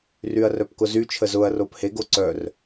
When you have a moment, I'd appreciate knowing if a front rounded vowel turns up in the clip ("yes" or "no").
yes